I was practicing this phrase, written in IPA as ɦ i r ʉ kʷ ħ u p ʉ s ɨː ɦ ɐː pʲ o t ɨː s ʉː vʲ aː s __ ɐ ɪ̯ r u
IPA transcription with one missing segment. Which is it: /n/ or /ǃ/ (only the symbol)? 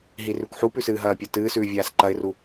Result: ǃ